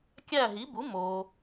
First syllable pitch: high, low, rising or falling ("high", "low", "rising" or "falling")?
falling